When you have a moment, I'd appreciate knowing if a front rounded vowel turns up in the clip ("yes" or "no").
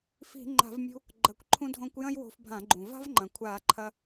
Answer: no